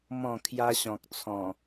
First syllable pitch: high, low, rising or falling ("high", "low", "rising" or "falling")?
falling